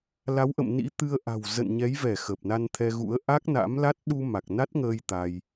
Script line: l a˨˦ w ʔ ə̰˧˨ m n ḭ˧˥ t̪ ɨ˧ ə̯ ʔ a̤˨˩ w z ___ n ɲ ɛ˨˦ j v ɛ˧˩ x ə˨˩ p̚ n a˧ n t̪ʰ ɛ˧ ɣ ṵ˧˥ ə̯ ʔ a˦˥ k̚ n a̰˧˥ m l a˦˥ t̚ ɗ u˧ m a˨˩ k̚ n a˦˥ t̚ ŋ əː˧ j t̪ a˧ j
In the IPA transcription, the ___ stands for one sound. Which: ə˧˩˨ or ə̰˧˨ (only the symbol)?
ə̰˧˨